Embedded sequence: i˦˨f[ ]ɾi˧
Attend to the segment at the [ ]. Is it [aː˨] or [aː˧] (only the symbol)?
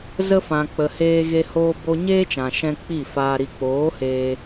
aː˧